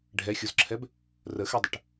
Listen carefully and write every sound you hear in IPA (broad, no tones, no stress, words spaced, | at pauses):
ɖʱɛxʲuzǁʰɛb | rəxɛdˤəʈ